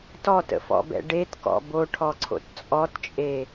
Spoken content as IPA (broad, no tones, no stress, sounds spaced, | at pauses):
t ɔ t ə̰ f ɔ̰ b ɛ̰ ɖ e t k ɔ̰ b o ʈʰ ɔ ǀʰ o̰ t t͡sʼ ɔ t t͡ʃʼ e